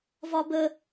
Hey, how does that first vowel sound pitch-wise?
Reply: high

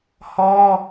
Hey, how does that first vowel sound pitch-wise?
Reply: high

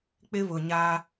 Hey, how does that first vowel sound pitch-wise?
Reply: high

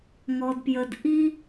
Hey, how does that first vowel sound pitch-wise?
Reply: low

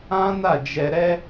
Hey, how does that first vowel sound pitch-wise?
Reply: high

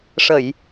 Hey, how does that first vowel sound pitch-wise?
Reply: low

